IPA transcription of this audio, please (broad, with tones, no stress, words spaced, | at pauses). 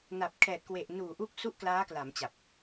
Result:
na˨˩p̚ kʰɛː˨˩t̚kwe˨˩ʔnuː˨˩ ʔu˥˩k̚ su˥˩ʔklaː˦˥kla˩˦mt͡ɕa˨˩p̚